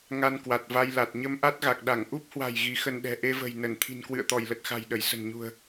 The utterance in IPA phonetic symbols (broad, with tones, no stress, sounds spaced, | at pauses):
ŋ a˧ n k w a˨˩ t̚ v a˧ j l a˨˩ t̚ ɲ ə˧ m ʔ a˦˥ t̚ ɣ a˨˩ k̚ ɗ a˧˩ ŋ ʔ u˦˥ p̚ h w a̤˨˩ j ɣ i˨˦ x ə˧ n ɗ ɛ̤˨˩ ʔ e˧ v ə̤˨˩ j n ə˧˩ n t̪ʰ i̤˨˩ n k w ɨ̰˧˨ ə̯ t̪ ɔ˧˩ j l ə˨˩ t̚ x a̤˨˩ j ɗ ə˧˩ j s ə̤˨˩ n ɲ ṳ˨˩ ə̯